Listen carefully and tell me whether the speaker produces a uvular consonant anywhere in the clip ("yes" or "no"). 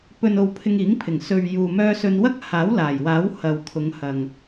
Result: no